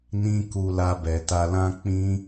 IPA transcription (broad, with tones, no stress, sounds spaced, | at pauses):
n ĩ˦ k u˧ l a˧ b ɛ˨ t a˧ l ã˦ k͡p ĩ˦